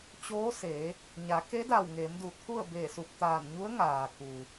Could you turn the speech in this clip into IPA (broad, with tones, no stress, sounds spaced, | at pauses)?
t͡ɕ oː˧˥ s e˩˧ | ɲ a˩˧ k e˧˥ d a˧˩ w ŋ e˩˧ m d u˩ t̪ʰ u˥˨ ə̯ b e˧˩ s u˧˩ p̚ t̪ aː˧˩ n ɲ u˧˥ ə̯ ŋ aː˩ k u˩